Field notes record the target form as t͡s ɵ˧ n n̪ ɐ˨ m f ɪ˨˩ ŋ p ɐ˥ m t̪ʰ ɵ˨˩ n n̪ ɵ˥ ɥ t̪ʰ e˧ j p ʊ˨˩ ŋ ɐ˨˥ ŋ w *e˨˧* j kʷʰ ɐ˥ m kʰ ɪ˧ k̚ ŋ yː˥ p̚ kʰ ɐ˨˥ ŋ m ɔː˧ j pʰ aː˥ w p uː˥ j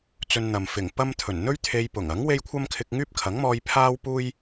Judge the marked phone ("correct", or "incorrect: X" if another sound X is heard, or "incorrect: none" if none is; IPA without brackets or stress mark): incorrect: e˥